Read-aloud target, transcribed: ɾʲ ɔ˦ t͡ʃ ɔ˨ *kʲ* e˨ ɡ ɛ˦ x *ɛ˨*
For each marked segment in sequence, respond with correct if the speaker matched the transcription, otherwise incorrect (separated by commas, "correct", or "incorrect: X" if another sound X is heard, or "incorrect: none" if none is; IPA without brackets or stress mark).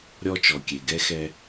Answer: correct, incorrect: ɛ˦